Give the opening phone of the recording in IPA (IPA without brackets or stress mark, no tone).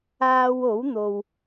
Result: aː